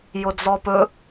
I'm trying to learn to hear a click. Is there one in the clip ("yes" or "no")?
no